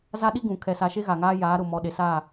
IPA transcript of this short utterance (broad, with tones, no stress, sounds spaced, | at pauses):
z a˦ ɗ i˦ ɡ ũ˨ kʰ ɛ˨ s a˨ ʃ e˦ ɣ a˨ ŋ aː˦ j aː˨˦ ɾ ʊ˨ m ɔ˨˦ ɗ e˨ s a˦˨